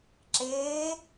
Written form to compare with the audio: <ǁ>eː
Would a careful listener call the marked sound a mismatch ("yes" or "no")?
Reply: no